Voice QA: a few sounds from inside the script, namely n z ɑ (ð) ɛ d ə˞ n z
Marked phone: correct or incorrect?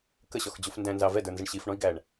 incorrect